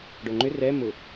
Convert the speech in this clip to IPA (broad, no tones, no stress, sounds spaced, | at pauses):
ɖ o ŋ͡ǃ ʏ r ɛ m ʊ